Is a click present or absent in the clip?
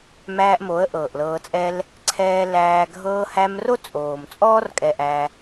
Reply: present